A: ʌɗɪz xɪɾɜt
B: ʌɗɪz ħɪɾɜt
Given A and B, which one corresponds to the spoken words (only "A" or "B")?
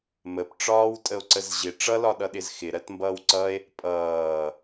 A